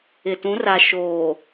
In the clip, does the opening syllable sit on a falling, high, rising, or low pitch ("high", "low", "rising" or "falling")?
low